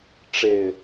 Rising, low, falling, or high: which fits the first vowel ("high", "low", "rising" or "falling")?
low